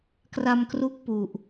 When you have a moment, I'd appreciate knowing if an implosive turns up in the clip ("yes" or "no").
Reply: no